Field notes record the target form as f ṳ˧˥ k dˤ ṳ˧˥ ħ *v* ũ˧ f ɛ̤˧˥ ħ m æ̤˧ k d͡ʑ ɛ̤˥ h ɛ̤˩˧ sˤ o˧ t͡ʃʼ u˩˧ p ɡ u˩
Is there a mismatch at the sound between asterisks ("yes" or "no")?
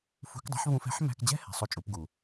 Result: no